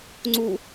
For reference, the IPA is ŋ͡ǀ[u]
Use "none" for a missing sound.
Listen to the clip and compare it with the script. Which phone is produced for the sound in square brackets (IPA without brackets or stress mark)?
u